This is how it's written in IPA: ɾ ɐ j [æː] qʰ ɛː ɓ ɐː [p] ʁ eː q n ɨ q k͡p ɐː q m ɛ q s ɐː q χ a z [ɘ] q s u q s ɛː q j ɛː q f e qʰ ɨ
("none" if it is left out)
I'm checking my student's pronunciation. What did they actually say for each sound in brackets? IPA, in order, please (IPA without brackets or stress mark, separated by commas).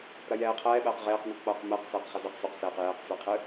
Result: ɛː, q, ɘ